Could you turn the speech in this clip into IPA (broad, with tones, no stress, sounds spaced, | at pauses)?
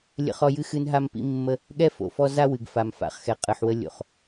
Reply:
lʲ ə̰˦ χ ɔ˦ j ɨ˦ x ɨ˦ n ɦ a˦ m p ḭ˦ mː ə˦ | ɠ ɛ˦ f o̰˨ f ɔ˦ z a˦ w ɨ˨ ɡ f a˨ m f a̰˨˦ χ x ɛ˨ qʼ ɨ˨ ħ w ə˦ lʲ o̰˨ χ